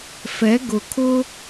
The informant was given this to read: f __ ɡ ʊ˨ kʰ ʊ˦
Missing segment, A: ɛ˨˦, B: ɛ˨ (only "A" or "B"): A